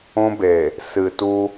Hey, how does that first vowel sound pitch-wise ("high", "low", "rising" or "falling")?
high